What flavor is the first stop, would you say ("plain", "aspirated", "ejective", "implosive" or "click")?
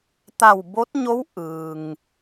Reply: plain